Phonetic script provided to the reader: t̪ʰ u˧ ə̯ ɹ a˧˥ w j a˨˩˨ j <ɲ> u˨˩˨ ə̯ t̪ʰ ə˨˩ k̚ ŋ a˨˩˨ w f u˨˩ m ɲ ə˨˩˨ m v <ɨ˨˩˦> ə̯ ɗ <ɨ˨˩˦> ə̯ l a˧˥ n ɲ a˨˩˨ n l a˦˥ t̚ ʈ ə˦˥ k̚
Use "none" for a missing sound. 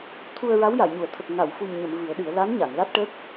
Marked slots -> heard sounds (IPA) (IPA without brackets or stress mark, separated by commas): ɲ, ɨ˨˩˦, ɨ˨˩˦